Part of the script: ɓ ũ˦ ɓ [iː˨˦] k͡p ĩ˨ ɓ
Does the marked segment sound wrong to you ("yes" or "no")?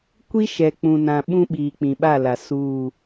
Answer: yes